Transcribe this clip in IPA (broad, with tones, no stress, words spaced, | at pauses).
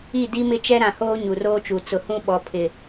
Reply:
i˦˨di˦mɪ˦ t͡ʃɛ˦ɾã˨hoː˦ ɲu˨roː˦t͡ʃu˨ t͡sʊ˨hũ˦ ɓɔ˨ pʰɪ˨